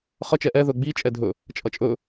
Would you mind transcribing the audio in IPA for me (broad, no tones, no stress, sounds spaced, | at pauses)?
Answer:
χ ʌ t͡ʃ ɛ ʔ ɛ ð ɵ ɡ͡b i t͡ʃʼ ɛ dʱ ɵ | t͡ʃʼ ʌ t͡ʃʼ ɵ